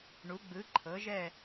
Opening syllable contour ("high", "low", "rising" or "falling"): rising